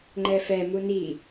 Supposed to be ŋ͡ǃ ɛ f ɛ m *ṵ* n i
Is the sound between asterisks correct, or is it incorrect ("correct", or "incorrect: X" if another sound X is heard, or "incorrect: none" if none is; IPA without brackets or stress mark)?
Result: incorrect: u